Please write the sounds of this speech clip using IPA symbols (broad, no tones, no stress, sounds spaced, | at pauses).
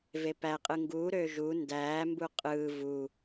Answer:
v e p æ qʼ ɯ ŋ ɡ uː ɾ øː ʒ u n d æː m b u qʼ ɯː v u